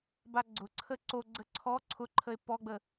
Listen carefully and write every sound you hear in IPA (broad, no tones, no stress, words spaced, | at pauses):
baɡ͡ǀʊǀʰə ǀoɡ͡ǀə ǀʰɔ ǀʰʊǃʰəe̯ pɔɡ͡bə